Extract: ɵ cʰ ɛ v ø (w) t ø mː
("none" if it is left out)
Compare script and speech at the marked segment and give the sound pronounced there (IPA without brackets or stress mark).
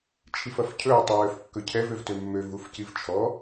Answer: v